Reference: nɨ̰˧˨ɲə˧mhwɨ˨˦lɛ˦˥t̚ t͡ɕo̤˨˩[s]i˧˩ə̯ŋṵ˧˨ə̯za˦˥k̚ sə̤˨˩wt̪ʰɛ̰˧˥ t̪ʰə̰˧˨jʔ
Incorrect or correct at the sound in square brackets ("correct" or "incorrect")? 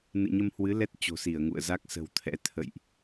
correct